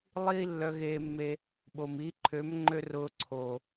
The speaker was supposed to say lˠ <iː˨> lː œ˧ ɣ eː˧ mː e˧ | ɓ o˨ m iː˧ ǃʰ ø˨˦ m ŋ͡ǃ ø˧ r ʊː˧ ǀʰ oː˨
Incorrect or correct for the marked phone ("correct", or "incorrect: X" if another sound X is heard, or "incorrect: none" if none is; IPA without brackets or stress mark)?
incorrect: iː˦